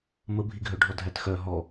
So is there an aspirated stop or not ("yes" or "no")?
no